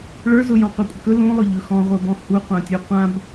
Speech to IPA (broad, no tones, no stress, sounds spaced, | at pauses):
ɭ ə˞ z ʊ j ɔ̃ qʷ ə˞ kʷʼ ə k ɵ l ũ lˠ ʊ ʎ ɵ x ɔ̃ ʁʷ ə˞ b ɔ̃ h u qʷ ã tʲ u qʷ ã b